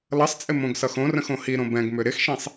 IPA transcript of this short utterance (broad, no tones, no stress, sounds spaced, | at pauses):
l ʌ sˤ t͡sʼ ɪ m õ ɡ s ʌ x õ r ə̃ x õ h i ɾ õ b ɛ̃ ɡ m ʏ ɾ ɪ x ʃ ĩ sˤ